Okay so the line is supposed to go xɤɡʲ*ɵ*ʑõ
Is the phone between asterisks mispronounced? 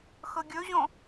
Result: no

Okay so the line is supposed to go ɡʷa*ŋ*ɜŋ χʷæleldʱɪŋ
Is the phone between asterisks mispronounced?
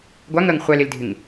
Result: no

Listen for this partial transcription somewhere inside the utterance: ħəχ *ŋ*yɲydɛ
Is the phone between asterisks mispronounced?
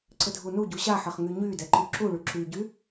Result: no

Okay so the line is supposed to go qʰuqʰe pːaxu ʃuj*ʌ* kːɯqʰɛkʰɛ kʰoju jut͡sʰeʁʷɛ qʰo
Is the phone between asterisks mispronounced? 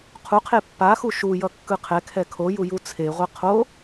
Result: no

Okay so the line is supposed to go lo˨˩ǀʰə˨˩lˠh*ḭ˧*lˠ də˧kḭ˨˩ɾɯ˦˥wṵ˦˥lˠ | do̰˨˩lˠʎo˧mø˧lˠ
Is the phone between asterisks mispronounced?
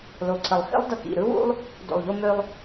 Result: yes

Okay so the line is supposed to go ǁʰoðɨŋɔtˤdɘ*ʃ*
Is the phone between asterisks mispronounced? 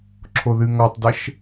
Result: no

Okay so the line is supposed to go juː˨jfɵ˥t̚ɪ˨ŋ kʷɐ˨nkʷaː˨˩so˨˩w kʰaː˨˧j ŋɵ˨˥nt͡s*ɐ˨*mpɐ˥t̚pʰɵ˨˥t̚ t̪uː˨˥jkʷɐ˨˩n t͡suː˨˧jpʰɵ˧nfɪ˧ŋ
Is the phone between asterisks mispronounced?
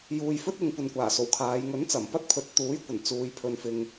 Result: yes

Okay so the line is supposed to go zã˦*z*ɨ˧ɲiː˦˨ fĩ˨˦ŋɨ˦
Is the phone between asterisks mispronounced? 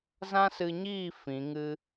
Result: yes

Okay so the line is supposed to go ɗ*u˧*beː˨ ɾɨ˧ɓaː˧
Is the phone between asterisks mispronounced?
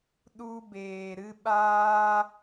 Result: no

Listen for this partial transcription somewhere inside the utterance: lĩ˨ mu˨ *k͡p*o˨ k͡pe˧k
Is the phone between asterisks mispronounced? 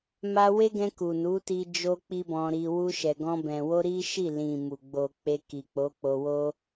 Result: yes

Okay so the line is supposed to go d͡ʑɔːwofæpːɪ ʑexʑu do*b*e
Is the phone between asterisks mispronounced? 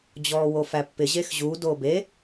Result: no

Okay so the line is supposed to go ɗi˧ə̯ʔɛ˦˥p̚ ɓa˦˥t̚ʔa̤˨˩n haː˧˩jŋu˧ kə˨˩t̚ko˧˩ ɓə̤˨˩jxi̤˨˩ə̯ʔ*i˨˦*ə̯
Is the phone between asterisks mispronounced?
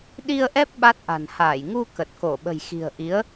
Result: no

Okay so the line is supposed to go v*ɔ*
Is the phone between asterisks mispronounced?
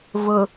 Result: yes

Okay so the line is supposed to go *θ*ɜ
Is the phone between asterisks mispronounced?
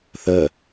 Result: no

